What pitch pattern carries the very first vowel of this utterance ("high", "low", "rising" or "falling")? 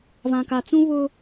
low